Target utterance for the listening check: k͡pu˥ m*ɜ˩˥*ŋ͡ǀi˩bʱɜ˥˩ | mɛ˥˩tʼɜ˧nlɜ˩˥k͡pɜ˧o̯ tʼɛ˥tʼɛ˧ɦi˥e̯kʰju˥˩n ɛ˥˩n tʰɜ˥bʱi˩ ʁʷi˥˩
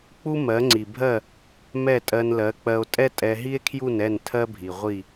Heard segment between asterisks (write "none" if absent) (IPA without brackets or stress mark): ɜ˩˥